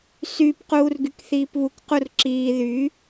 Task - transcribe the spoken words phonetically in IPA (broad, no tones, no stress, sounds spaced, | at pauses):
s y p q uː r ɡ y k θ iː p β u k q u r ǁ iː ð y